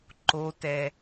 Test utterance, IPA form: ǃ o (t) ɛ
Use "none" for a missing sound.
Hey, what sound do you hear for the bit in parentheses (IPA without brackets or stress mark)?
t